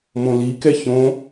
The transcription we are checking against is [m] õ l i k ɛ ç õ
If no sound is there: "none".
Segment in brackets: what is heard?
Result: m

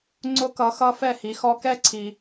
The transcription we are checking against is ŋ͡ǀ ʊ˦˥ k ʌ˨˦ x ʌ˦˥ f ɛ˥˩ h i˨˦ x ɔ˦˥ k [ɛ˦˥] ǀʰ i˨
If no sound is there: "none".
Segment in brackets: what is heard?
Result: ɛ˦˥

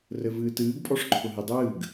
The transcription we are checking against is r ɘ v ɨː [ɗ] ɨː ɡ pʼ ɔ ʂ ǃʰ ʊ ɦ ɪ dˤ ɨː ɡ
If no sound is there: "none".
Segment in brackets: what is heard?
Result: t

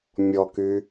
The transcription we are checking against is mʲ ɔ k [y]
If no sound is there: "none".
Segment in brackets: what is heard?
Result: y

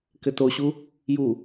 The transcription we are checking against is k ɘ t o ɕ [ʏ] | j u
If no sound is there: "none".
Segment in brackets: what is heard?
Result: u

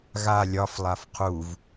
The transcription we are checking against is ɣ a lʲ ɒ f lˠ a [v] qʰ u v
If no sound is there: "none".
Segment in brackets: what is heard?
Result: f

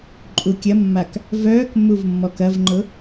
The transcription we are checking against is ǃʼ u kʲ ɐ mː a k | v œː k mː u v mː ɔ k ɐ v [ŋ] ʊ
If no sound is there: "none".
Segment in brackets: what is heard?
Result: ŋ͡ǃ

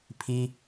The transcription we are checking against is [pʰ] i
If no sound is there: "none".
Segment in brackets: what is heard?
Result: pʰ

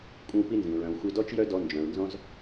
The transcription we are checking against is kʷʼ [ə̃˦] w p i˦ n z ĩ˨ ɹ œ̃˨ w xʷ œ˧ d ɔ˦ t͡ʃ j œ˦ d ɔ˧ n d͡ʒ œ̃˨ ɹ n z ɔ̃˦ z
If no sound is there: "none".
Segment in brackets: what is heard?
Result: ə̃˦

